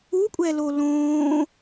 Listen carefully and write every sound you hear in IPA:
u kʷʼ ɛ l o l õː

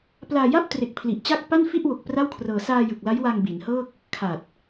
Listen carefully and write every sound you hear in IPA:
p l aː˧ j a˥˩ p̚ t r e˨˩ k̚ pʰ l i˨˩ ʔ t͡ɕ a˥˩ k̚ p a˥˩ n f i˥˩ ʔ w o˨˩ k̚ p r a˥˩ w kʰ r ɤː˧ s aː˧ j ɯ˨˩ k̚ l a˦˥ j w a˧ ŋ b i˩˦ n h ɤː˥˩ k̚ | kʰ a˨˩ t̚

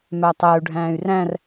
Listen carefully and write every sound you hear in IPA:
m æ tˤ æ u̯ ɖʱ æ̃ː y̯ r æ̃ r

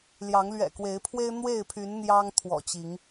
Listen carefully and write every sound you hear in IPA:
l j ɑ˨˦ ŋ l ɥ ɛ̰˨˩ k w e˨˦ ɪ̯ pʰ w e˦ ɪ̯ n̪ w e˥˨ ɪ̯ pʰ y˨˦ n n̪ j ɑ˦ ŋ t̪ʰ w ɔ̰˨˩ t͡ɕ i˨˦ ŋ

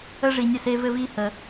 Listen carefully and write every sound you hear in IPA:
ə˥ ʐ i˧ nʲ ə˥˩ s e˥ v ɘ˥ v i˥ h ə˧

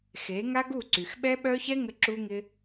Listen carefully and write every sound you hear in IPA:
x e˨˦ ŋ a˦ ɡ u˦˨ ǀ y˨ x ɓ ɛ˦ ɓ œ˦ ç ɛ˦ ŋ ə˧ ǁ u˦ ŋ ɪ˦

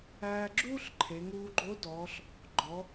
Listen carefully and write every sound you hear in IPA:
æː˧ ɡ͡ǁ uː˥ ɬ ǃʰ e˩˧ ŋ uː˧ ɡ͡ǃ o˧˥ d ɔː˩˧ ɬ | ɡ͡ǃ ɔ˩˧

